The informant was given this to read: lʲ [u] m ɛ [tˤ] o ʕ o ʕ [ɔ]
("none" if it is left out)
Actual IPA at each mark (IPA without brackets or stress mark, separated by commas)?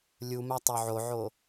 u, tˤ, o